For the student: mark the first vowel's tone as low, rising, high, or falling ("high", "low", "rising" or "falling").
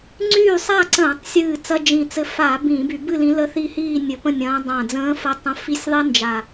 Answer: falling